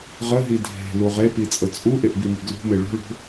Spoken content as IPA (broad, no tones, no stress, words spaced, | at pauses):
ʁəɦi dʱe̤luʁ epi t͡sʼət͡sʼuʔeʔ bimi̤ɡlṳme ɭo̤ɭo̤